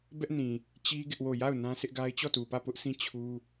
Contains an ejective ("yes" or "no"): no